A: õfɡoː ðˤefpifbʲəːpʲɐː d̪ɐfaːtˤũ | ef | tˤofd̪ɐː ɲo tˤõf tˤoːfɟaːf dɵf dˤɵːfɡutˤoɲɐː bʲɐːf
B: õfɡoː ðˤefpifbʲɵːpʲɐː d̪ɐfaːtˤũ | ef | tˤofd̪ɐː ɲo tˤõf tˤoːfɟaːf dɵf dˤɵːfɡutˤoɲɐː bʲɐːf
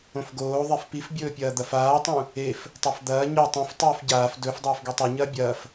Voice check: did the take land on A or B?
B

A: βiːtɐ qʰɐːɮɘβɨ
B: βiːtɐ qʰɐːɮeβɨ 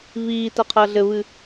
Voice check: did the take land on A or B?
A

